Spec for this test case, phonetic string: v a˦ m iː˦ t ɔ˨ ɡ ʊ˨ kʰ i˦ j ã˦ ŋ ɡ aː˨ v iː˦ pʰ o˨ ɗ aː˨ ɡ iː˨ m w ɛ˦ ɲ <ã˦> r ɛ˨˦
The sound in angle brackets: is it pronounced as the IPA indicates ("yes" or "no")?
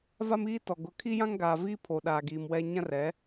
yes